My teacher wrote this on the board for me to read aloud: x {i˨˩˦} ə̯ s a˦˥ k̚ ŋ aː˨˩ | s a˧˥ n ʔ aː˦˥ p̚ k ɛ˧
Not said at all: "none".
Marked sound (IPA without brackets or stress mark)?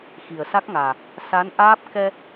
i˨˩